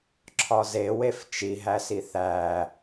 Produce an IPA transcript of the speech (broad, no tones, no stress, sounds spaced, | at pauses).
ǁʰ ɒ z e w e f t͡ʃ i ɦ æ s i θ æ